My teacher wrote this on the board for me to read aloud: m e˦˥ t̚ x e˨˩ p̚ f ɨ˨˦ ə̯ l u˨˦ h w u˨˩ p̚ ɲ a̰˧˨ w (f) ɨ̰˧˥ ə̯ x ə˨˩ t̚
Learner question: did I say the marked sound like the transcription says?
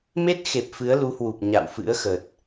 yes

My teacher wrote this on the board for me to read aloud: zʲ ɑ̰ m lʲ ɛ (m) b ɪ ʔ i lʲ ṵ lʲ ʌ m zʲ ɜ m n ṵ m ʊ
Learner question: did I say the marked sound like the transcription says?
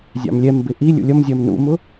yes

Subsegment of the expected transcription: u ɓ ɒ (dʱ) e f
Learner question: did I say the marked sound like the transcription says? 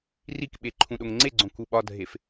yes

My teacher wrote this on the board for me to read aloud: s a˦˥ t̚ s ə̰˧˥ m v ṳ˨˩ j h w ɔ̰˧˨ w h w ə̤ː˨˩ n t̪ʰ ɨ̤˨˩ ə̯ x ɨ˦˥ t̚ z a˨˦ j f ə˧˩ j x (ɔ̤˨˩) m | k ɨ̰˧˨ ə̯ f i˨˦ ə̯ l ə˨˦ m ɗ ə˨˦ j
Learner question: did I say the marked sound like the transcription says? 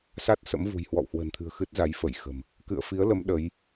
no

